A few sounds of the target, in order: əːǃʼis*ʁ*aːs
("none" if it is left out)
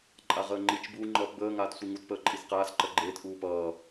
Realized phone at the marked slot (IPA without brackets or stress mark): q